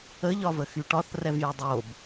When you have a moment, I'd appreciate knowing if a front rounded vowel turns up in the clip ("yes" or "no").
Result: yes